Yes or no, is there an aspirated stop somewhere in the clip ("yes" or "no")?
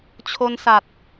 yes